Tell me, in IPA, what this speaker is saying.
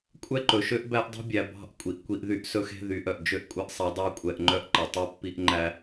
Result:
kʷʼɛ˦ǃɵ˨ʃø˦ʔ bæ˦ʔdˤṳ˦bʲæ˨ bɑ̤˦˨ʔ kʷʼi˨ʔkʷi˦ʔðy˦ʔ sɵ˦xe̤˦ ðy˨˦ʔœ˨ʔ d͡ʒø˦ʔkʷʼɛ˦ʔsˤɛ˨˦ dˤɑ˦kʷʼɛ˨ʔŋ͡ǃœ˦ʔ ǃɛ˨tˤu˦pːi˦ʔ ŋ͡ǃæ˦

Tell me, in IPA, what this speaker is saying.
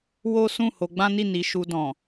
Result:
wo˦ sũ˦˨ ho˧ɡ͡bã˦ni˦˨ ni˨˦ʃu˧dɔ̃˨

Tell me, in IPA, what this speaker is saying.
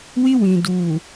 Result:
wi˦wĩ˨ duː˨

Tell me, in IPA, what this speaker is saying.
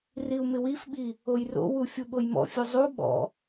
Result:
riu̯mɪwifɓi | ojro̰wu fʲuɓojmɔ̰fʲu zˤu ɓɔ̰

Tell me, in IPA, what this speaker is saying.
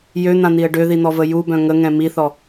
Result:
jøn̪ãn̪iə̯ ɖøðin̪ɔvə jubœ̃ ŋəŋɛ̃ miθɔ

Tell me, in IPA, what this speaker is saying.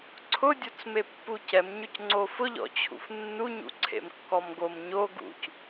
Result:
ǀʰʊdʲot͡sme pːucɛmɲʊc ŋ͡ǀofʊʎɔ̰t͡ɕʰṵf nːuɲṵǀʰḛm kːɔmɡom ɲo ɡṵc

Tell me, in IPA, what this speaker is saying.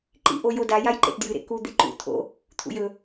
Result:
ǃḭʔo joda jajǃḛtdjɨɾḛ ku d̪eǃṵ t̪ʰo̰ | t̪ʰṵjɵ

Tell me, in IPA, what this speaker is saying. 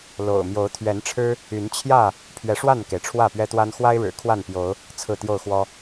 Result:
lo̰˨˩ʊ̯ mjo˨˦ʊ̯t̪ʰɥɛ˨˦nʈ͡ʂʰɻ̩˦ | y˨˦nt͡ɕʰjä˥˨ | pʰɥɛ˨˦ʂwa˥˨nke˩ɪ̯ ʈ͡ʂʰwä˥˨pɥɛ˦t̪wa˦n xwa˦ɪ̯ɻɻ̩˨˩ kʰwa˥˨npjo˨˦ʊ̯ | t͡sʰɹ̩˥˨t̪jo˥˨ʊ̯xwɔ˦

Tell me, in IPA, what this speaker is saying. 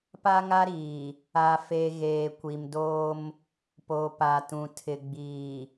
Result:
pa˦ŋa˦ɾiː˨ | a˦fe˦ ɣeː˨kʷi˨mdoː˦m | po˨pa˨tũ˨ tʰɪ˨ɡ͡biː˨

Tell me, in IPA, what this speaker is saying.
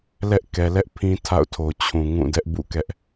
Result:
lɛ˦ʔkɛ˨lɛ˦ʔpʰĩ˦ tʰa̰˦˨ʊ̯tʰo˨ t͡ɕʰũ˨ŋũ˦˨ dɛ˦ʔbṵ˦˨kɛ˦ʔ

